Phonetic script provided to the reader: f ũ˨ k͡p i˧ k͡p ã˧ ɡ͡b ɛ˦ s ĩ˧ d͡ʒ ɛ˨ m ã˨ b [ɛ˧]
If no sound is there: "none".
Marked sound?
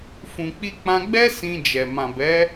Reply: ɛ˨˦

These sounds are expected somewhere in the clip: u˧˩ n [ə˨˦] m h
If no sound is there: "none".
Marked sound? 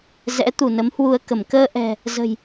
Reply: ə˨˦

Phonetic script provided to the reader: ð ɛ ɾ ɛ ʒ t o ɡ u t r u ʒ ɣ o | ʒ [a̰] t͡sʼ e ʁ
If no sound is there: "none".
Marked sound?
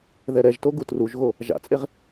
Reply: a̰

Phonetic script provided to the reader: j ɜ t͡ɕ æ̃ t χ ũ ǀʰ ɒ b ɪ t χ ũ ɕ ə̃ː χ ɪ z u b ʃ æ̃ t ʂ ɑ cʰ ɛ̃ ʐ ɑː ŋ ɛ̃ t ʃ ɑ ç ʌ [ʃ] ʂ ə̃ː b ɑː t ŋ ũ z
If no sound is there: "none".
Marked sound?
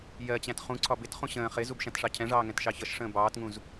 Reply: ʃ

